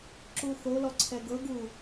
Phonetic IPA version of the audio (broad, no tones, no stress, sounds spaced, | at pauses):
ǁ u θ o l ɔ ǀʰ ɛ ɡ ɤ ɡ uː